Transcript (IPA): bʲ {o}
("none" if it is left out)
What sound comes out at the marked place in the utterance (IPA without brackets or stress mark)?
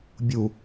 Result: u